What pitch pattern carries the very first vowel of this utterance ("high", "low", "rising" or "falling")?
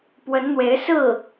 rising